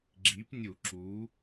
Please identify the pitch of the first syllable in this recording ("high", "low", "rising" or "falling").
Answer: rising